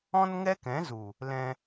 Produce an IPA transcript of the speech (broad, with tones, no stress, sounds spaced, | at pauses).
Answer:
ɔ̃˦ n ŋ ɛ˦ k ɛ̃˨˦ z u˨ | l ɛ̃˧